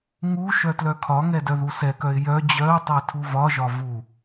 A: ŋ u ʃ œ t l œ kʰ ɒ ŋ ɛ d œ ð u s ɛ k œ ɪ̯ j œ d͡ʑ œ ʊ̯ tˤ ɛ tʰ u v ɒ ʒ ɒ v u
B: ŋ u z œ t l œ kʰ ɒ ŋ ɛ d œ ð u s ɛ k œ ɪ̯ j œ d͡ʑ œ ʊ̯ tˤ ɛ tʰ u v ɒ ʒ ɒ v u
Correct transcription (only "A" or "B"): A